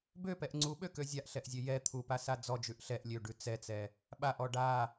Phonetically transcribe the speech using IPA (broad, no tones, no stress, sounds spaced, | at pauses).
b ø p ɛ ʔ ŋ͡ǀ u ɓ ø k ø zʲ a ʔ ɬ ɛ ʔ zʲ ø j ɛ t̪ʰ u p a s a d͡z ɔ d͡ʒ ʉ ʔ ɬ ɛ ʔ lʲ ø ɖ ʉ t͡s ɛ t͡s ɛ | ɓ a ʔ ɔ ɖ a